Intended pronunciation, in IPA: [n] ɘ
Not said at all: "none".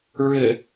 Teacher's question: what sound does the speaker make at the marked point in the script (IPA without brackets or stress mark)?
ɹ